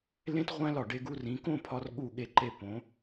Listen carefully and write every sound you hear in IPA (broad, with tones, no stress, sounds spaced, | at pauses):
l ẽ˥ t ʁʷ æ̃˥ l ɒ˧˩ ɖ e˧ ɡ u˧ r ĩ˩˧ k õ˥˧ pʰ ɒ˧ r ɠ u˧˩ ɠ e˧˩ ǃ e˧˩ p õ˩˧